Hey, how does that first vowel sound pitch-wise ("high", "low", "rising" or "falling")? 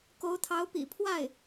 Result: rising